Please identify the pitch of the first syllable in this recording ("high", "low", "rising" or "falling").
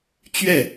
falling